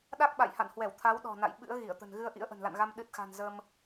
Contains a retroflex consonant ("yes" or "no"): no